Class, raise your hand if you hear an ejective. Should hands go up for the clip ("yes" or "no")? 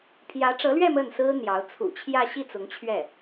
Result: no